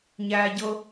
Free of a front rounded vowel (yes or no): yes